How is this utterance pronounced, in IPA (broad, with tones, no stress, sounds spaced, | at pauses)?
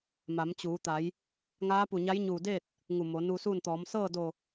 m a˩˧ m t͡ɕ uː˩˧ t̪ a˩˧ j | ŋ aː˧˥ p u˧˩ ɲ a˧˥ j ɲ uː˧˩ d eː˥˨ t̚ | ŋ u˧˩ m o˩˧ n u˧ s uː˥˨ n t̪ ɔː˩˧ m s ɤː˥˨ d o˧˩